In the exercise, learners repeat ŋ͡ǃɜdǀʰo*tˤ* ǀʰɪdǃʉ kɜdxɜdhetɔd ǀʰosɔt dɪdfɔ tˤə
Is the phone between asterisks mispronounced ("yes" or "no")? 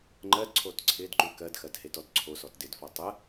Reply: yes